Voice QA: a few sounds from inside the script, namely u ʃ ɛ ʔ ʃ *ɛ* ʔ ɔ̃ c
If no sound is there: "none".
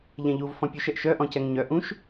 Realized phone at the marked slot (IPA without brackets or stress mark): œ